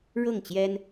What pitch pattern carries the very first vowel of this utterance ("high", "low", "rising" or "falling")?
falling